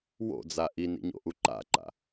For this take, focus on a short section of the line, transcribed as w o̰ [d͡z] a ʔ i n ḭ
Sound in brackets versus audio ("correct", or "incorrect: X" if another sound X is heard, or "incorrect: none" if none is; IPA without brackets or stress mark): correct